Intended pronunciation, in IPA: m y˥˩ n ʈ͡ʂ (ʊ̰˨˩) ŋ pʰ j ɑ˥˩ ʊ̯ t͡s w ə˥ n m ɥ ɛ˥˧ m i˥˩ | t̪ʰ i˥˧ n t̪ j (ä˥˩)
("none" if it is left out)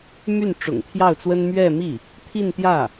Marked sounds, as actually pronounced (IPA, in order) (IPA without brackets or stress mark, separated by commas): ʊ̰˨˩, ä˥˩